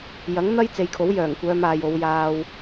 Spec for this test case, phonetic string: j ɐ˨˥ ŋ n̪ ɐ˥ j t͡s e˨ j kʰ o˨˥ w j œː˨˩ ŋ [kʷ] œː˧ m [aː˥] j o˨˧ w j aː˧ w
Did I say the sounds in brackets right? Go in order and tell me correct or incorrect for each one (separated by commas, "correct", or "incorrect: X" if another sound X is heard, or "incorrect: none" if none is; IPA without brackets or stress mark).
correct, incorrect: aː˨